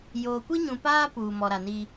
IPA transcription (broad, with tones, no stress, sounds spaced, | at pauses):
j oː˨ kʷ i˦ ɲ ũ˨ p aː˦ p uː˨ m ɔ˨ ɾ a˨ n iː˦